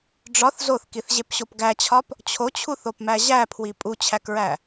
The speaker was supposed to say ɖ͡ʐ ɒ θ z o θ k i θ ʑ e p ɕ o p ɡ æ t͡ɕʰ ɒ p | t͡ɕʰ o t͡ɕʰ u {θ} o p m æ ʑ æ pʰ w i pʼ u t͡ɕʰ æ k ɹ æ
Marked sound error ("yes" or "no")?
no